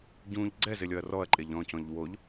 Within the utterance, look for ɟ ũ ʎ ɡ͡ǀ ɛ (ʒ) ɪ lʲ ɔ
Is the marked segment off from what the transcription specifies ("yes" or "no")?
yes